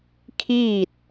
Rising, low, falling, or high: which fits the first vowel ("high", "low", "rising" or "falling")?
falling